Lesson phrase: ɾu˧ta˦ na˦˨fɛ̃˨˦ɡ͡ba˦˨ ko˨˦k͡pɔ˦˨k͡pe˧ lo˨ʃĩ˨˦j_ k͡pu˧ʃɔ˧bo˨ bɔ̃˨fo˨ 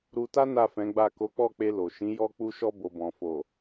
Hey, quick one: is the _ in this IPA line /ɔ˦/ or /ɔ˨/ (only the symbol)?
ɔ˦